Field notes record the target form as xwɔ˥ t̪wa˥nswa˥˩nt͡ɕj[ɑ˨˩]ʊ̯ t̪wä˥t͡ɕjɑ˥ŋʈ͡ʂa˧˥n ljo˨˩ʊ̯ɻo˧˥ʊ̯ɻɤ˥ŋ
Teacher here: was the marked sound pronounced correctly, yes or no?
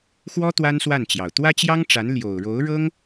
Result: yes